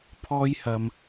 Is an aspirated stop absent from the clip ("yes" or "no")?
no